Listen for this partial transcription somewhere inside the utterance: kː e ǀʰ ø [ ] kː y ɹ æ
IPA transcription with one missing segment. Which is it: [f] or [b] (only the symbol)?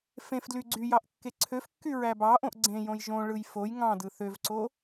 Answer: f